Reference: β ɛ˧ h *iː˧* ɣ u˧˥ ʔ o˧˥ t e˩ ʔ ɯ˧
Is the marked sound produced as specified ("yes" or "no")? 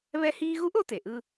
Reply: yes